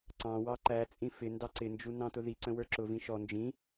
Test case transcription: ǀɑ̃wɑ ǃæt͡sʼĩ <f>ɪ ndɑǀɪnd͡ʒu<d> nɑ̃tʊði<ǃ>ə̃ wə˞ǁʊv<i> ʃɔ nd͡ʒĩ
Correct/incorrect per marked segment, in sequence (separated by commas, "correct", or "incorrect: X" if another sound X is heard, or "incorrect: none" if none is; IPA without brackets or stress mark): correct, incorrect: none, incorrect: ǀ, incorrect: ĩ